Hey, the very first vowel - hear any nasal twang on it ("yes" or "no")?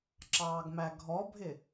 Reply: no